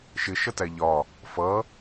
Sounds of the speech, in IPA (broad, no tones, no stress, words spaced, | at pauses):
ʃɪʃʌtæ ʎɒ | fʌ